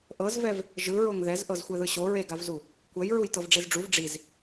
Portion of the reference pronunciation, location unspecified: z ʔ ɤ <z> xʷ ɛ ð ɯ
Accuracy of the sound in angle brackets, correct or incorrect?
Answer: correct